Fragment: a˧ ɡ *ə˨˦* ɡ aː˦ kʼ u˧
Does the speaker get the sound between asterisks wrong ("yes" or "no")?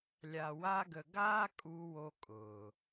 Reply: yes